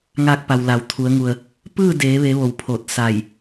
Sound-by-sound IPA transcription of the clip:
ŋ aː˧ k̚ p a˩ w l a˩˧ w t̪ʰ u˩˧ ə̯ ŋ u˩ ə̯ | p ɯː˥˨ d eː˩˧ ʋ e˩˧ ʋ o˩˧ w pʰ o˧˩ t̚ s a˧˩ j

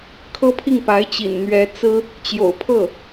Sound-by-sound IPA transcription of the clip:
kʰ ɤ˥ pʰ i˥˩ ŋ p a˧˥ ɪ̯ t͡ɕ ḭ˨˩ n n̪ ɥ ɛ˧˥ t͡s ɹ̩˥ | t͡ɕ j o̰˨˩ ʊ̯ pʰ ɤ˥˩

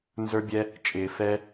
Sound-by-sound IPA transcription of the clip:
n z ə˞˦ bʲ ɛ˦ | t͡ʃʼ ɪː˧ f ɛ˦

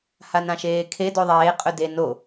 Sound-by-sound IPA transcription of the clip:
h a n ã ʃ eː kʰ e d o ðˤ eː qʼ ɵ d e n o

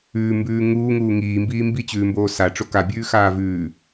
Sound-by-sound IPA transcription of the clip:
ʉː m b ʉː ŋ uː ŋ uː ŋ iː m b iː m b i t͡ɕ ʉː m b oː s a ʈ͡ʂ o k a bʲ ʉː x aː v ʉː

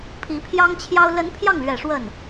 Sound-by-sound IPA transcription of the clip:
pʰ i˧˥ pʰ j ɑ˥ ŋ t͡ɕʰ j ɑ˥ ʊ̯ l ə˧˥ n pʰ j ɑ˥˩ ŋ l ɥ ɛ˨˩ ʂ w ə˥˩ n

